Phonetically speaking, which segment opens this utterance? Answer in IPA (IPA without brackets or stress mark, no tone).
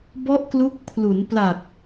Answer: b